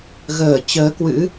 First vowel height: mid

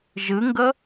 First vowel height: high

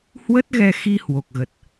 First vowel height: mid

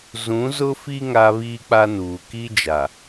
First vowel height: high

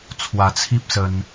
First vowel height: low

